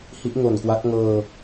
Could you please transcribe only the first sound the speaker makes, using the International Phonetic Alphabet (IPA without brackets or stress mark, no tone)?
h